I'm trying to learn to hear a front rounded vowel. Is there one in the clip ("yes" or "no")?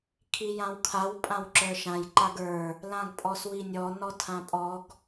no